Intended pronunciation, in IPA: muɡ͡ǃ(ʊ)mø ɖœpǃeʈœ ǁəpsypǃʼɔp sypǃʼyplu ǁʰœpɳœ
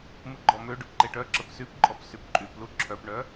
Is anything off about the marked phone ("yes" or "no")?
yes